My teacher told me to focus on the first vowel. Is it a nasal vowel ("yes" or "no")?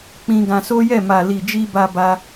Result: yes